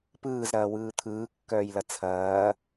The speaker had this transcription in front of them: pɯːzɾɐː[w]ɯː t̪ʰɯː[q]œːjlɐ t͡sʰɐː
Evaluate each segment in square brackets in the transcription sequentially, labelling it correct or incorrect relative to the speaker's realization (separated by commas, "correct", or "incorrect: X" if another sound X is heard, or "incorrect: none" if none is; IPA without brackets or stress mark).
correct, incorrect: kː